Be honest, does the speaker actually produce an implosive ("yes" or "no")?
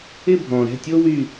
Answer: no